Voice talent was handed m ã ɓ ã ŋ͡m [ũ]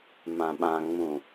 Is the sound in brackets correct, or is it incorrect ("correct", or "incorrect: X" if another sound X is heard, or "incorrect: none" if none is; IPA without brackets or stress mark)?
correct